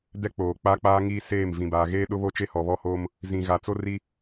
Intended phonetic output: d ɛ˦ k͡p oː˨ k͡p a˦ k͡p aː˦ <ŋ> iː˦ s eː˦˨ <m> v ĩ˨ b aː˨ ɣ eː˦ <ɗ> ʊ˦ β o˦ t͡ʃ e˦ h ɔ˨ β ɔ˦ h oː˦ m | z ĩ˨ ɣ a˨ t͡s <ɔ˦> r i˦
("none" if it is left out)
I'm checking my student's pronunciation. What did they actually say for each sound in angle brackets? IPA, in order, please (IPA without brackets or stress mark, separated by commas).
ŋ, m, ɗ, o˦